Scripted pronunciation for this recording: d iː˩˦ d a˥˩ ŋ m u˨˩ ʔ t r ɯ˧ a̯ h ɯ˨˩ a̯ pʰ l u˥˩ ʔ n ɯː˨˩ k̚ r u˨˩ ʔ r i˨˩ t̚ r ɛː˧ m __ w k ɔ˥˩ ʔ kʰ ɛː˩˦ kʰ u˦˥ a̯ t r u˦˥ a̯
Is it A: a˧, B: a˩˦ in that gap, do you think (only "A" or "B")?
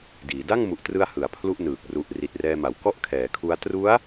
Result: B